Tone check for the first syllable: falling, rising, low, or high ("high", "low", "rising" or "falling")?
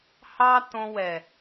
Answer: high